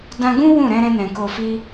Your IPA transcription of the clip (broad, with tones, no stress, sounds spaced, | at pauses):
d ã˧ ɡ ũ˦ w ũ˦˨ ɾ ɛ̃˧ ɾ ɛ̃˧ n ɛ̃˨ k o˨ f i˧